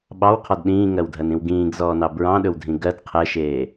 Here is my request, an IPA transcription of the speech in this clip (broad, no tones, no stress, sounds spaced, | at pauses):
ɓ ɑ w qʰ ɔ d ɗ ĩː ŋ ɜ w dʱ ɜ n ĩ w ɡ ĩː ɡ z ɔː n ɑ b ɹ ɑ̃ ɗ ɵ w dʱ ĩ ɡ ɜ d qʰ ɛ ʃ eː